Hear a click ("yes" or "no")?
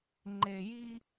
yes